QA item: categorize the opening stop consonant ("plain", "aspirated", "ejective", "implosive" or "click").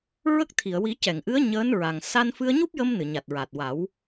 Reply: plain